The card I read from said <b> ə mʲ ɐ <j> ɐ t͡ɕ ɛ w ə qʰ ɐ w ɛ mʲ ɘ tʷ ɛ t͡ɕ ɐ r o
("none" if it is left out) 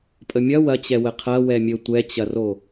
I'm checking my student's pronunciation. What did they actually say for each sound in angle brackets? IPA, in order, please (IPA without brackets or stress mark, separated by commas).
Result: pʼ, w